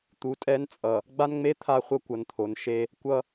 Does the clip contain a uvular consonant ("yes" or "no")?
yes